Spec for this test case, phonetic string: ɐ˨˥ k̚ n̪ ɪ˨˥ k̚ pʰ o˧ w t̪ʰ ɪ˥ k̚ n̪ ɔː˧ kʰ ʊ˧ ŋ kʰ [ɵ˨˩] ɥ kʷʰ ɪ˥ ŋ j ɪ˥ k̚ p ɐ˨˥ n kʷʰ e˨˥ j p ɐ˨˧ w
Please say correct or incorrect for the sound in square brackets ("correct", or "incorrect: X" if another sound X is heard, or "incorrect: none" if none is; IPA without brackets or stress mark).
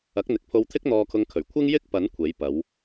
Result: correct